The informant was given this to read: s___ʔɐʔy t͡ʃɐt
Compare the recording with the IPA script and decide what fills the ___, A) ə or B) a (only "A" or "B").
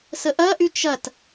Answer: A